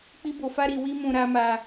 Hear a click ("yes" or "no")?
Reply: no